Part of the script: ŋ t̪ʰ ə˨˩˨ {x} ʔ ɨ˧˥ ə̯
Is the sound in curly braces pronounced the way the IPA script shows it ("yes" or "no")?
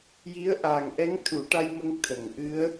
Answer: no